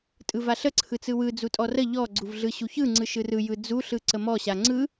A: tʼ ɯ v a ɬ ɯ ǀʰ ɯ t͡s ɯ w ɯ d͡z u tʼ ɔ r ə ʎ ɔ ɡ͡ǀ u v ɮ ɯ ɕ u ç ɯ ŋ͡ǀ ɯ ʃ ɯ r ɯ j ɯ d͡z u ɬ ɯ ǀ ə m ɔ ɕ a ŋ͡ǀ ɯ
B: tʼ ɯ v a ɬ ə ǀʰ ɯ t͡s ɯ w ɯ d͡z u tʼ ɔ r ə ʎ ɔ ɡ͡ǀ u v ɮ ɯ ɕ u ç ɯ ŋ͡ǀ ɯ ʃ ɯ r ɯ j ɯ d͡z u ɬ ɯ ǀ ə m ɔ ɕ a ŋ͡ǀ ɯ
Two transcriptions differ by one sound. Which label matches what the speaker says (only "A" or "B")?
B